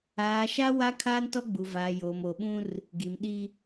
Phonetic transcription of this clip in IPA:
aː˨ʃa˦ wa˦ kʰaː˦ntɔ˦ɡ͡bu˨vaː˨ joː˨mo˨ɓũ˦r | ɡi˨mɗi˦

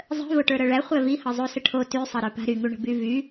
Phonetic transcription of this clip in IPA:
zˤə̤vo ʈə˞ɾɤɭæχʷæ vihɤ zˤusəʈʰo ty sˤɤɾə˞pa̤ ɾyŋuɳə̤by vy

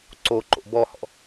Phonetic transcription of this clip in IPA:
ǀo ǃo̰bɔhɔ̰

